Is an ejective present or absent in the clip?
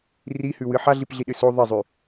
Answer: absent